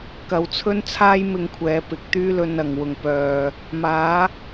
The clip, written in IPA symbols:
kɐ˨˧wt͡sʰɵ˥nt͡sʰaː˥j mɪ˧ŋkʷʰɛː˨ pɪ˨˥k̚t̪yː˥ lɵ˧n ɐ˨ŋwʊ˧ŋ pœː˧ | maː˨˥

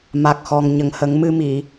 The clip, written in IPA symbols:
ma˨˩k̚xɔ˨˩ŋ ɲə˨˩˨ŋhə˨˩˦ŋmɨ˧mi˨˩˨

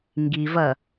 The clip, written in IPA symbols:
ŋɡivɐ

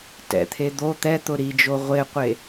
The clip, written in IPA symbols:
tɛ̰t̪ʰe d̪o t̪ɛt̪ʊ ɾid͡ʒo ʁʷeqʷe

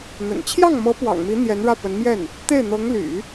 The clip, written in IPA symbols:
n̪ə̰˨˩n t͡ɕʰjɑ˥˩ŋmɤ˧˥ pwɑ̰˨˩ŋmi˧˥ n̪jɛ˧˥n ɻä˥˩ pə˧˥n mjɛ˥˩n | t̪e˥˩ɪ̯n̪ɤ˧˥ŋ ly̰˨˩˦

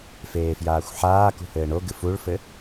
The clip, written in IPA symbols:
feːfjaːxʷħaːkṳ hɘːɳo ɡɨfuɭfɘ

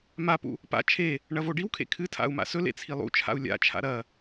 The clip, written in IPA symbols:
mapṵ | pa̰ t͡ʃʰe | ɳɐvoɖiwkʰḛ kʰɨtʰa̰u̯ ma̰sɵlḛ t͡sʰilˠṵt͡ʃʰa̰u̯ lʲa̰t͡ʃʰa̰ ɾɐ

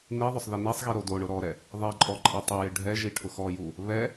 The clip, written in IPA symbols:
niðˤʊsˤ ðinɛsˤɣi ɾodoɳʊ ɾɔɾɛ | ðˤeǃʼɔ ǃʼɛtˤɪjɪ ɖʱɛʒi ʈʰʊxɔju | βɛ

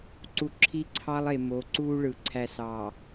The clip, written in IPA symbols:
ǀu˨ ǁʰi˦ǀʰɑ˦lˠe˨ mo˨˦ǀuː˦ɭɯ˨ ǀʰæ˨ sɑ˨

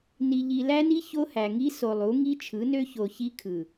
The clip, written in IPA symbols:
ni˨ʎi˨læ˦ni˦ ço˦hæ˨ ŋi˦so˨lˠu˨˦ ŋi˦t͡ʃʰɯ˨˦nø˦ ço˨ çi˦kʰɯ˨

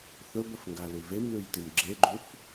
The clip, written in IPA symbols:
θɵbɐfŋɡalʉ vemlʉjtim ɡ͡ǁeɡ͡ǃuf

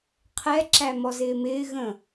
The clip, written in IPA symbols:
qʰɛǁæ mɔzɪːmɪː ɣə̃

